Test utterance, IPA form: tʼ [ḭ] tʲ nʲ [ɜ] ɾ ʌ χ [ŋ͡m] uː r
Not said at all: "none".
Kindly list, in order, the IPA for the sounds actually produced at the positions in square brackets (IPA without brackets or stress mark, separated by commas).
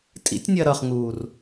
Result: ḭ, ɜ, ŋ